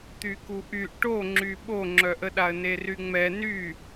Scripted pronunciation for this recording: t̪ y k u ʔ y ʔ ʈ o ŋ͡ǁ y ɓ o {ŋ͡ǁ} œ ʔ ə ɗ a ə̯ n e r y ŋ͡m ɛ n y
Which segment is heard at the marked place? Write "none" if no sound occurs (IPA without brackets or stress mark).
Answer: ŋ͡ǁ